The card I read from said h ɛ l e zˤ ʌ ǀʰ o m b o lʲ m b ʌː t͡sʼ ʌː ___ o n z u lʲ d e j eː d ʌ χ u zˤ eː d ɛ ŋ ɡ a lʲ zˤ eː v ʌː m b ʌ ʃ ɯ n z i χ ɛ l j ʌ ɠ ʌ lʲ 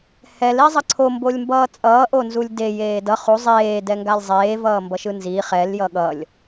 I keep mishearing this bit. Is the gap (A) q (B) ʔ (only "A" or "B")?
B